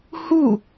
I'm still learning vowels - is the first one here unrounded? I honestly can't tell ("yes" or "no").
no